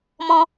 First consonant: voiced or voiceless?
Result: voiced